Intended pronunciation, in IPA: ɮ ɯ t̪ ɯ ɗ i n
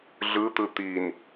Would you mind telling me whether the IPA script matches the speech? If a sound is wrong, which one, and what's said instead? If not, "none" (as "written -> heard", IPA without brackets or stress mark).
ɗ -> t̪